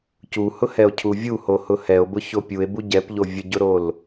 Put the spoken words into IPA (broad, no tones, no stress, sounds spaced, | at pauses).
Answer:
c u h ʊ h ɛ o̯ cʰ u vʲ u h o h ʊ h ɛ o̯ b ʊ ç o pʲ u e̯ b u ɟ ɛ p ʎ o vʲ ə ɟ ʊ ɾ o l